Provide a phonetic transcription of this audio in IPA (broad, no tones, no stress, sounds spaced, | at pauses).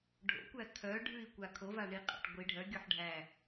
ɖʱ o̰ kʷ æ kʰ œ ɖʱ ʉ i̯ kʷ a kʰ o v a ɳ i qʼ a̰ ʈ ɡʷ i ɖʱ œ ɡʲ o ħ ɖʱ æ